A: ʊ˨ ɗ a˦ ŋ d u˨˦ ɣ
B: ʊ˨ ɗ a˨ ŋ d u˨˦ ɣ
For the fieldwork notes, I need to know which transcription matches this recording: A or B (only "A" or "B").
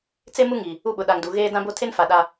B